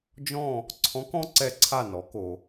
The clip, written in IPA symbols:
d͡ʒ ɔ̃˦˨ | ǀʰ ɔ̃˧˥ k ɔ̃˥ ǀ ɛ˦˨ ǀʰ a˦˨ n ɔ˩˥ k o˨

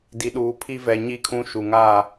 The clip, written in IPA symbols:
d i˨ ɗ uː˨ pʰ i˦ v ɛ˨ ɲ i˦˨ kʰ ũ˦ ʃ u˨ ŋ aː˦˨

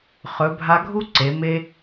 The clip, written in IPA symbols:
χ ɵ˩˧ bʱ a˧ ɡʱ u˥ ǀ e˩˧ m e˧

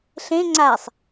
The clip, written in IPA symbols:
ɬ ẽ ŋ͡ǀ a sˤ

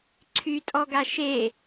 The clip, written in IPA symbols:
ǀʰ y tʼ ɔ ɡ a ʃ e

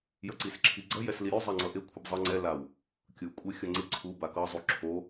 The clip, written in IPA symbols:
j ʌ ǀ i s ǁʰ i ɡ͡ǀ ʌ j ɛ s l i ɾʲ u zˤ ɛ ŋ͡ǀ ʌ ʔ e kʷʰ ɯ b zˤ ʌ ŋ͡ǀ ɛ l a w | kʲ ɯ kʷʼ e xʲ ʌ ŋ͡ǀ i ǀʰ u b a k ʌ zˤ u ǁʰ o

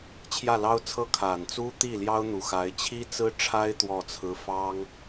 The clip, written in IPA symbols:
t͡ɕʰ j ä˥˩ l ɑ˥ ʊ̯ t͡sʰ ɤ˥˩ kʰ a˨˩ n t͡s u˥ t̪ i˥˩ l j ɑ˥ ʊ̯ n̪ u˨˩ x a˧˥ ɪ̯ t͡ɕʰ i˥ t͡s ɹ̩˥ ʈ͡ʂʰ a˥ ɪ̯ t̪ w ɔ˥˩ t͡sʰ ɹ̩˥ f ɑ˥ ŋ

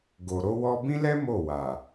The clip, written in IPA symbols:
ɡ o˨ ɾ o˧ w ɔ˧ b ĩ˦ l ɛ˦ m o˦˨ w a˨

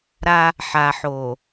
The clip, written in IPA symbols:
ɾ a˦ | ħ a˨ ħ o˨

